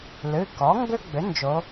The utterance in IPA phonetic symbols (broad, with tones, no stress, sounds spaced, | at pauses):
l ɨ˩˧˩ k ɔ˩˥ ŋ ɡ ʏ˦ ɡ͡b ʏ˩˥ n d͡ʒ o˩˧